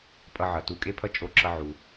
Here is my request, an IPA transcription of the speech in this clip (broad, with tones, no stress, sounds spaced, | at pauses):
pʼ ʌ˧ ʕ ʌ˩ t u˧ kʼ e˥ pʰ ʌ˥ t͡ʃʼ o˧ ǁ ʌ˧ ʕ u˩